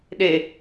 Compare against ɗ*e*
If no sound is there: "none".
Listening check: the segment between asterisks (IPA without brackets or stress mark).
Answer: e